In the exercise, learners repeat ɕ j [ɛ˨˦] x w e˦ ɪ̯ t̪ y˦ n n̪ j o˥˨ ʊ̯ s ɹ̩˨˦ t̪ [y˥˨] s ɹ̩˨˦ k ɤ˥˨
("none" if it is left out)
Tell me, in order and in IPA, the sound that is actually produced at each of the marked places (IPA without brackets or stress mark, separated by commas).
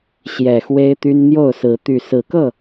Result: ɛ˨˩, y˨˩